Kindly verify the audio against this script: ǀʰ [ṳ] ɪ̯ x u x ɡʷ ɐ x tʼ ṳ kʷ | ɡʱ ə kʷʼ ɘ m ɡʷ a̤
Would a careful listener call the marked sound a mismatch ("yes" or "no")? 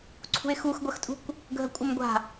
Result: no